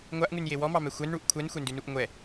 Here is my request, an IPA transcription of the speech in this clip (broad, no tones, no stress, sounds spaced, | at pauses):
ŋʷ a ʔ ŋ ʉ n j e w ɔ m ɑ m ɛ xʷ ɛ n ɳ u ʔ kʷʰ ɛ n xʷ ɛ n d ʉ n u ʔ ŋʷ ɛ